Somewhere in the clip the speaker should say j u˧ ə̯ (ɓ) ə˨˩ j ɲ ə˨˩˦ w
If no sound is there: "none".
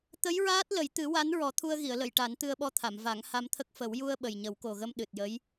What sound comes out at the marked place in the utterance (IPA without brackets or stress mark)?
ɓ